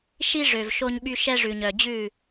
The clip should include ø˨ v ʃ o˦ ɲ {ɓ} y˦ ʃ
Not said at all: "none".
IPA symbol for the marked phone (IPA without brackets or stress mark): ɓ